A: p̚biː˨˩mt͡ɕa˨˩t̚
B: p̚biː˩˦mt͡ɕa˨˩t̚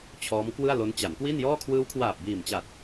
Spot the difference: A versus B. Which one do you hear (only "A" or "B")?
A